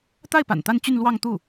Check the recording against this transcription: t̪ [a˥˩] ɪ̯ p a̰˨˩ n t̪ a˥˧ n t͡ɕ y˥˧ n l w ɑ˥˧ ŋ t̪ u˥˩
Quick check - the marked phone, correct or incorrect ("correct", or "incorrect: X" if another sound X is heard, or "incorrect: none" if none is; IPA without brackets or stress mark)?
correct